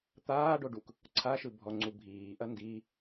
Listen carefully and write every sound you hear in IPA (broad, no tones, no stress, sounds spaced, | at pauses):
t̪ aː ɖ o ɖ u k | ǀʰ a ʃ ɯ bʱ ɔ ŋ͡ǀ u bʱ iː ʔ ɐ n d i